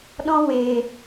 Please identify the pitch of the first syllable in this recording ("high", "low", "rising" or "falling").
high